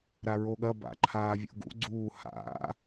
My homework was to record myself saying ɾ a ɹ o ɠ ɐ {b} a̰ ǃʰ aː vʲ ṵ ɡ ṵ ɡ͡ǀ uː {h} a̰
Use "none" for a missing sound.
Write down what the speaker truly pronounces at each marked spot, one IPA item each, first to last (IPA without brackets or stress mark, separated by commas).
b, h